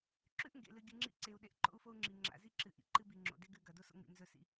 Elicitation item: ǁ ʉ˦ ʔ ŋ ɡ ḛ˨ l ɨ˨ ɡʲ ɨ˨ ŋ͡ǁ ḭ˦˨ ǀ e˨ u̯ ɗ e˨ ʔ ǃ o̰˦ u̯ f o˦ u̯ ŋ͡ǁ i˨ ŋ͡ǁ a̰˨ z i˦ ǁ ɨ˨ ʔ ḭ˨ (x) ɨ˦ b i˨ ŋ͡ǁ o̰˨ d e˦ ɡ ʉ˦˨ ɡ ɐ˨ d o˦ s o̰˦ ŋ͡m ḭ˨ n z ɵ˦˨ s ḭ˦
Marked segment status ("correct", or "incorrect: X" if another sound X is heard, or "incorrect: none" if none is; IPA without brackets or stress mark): incorrect: ǃ